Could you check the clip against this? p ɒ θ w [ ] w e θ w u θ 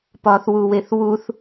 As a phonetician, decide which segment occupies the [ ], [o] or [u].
u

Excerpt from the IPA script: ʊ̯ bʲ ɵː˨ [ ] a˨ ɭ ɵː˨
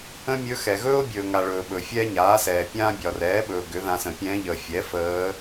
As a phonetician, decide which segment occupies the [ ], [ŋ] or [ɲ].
ŋ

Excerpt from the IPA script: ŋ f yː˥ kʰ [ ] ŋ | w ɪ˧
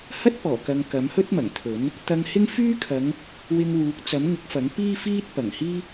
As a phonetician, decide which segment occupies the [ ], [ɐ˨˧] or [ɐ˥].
ɐ˨˧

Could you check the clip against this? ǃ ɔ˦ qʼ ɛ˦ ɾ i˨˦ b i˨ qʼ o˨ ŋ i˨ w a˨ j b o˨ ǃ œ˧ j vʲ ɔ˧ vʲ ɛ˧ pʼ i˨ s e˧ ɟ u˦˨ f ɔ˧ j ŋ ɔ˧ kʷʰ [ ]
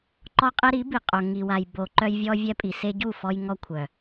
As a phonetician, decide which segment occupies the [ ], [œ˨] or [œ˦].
œ˨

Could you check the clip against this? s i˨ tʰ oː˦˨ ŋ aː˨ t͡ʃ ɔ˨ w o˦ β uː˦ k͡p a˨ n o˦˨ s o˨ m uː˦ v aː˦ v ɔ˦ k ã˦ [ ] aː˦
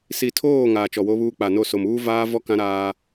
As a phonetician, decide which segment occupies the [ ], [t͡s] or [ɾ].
ɾ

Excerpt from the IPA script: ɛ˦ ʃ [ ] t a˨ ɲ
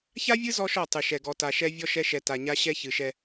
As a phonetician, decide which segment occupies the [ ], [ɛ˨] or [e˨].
ɛ˨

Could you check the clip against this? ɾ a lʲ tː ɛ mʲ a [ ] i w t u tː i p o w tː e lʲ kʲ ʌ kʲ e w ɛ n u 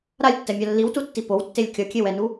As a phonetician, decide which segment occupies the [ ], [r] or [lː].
lː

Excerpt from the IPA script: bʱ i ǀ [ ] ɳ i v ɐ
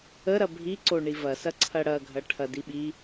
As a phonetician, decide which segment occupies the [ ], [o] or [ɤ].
o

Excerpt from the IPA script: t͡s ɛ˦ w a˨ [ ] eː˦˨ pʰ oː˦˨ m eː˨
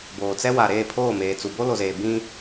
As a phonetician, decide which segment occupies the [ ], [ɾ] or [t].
ɾ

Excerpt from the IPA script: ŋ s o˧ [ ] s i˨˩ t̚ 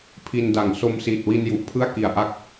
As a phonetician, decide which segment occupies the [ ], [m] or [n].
m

